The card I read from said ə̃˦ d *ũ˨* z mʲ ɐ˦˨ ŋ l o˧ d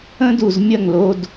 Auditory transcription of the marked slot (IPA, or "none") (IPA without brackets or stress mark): u˨